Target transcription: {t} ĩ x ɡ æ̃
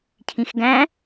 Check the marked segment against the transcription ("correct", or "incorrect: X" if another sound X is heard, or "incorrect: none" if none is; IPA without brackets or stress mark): incorrect: cʰ